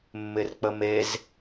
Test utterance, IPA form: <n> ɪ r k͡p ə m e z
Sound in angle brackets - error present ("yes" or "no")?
yes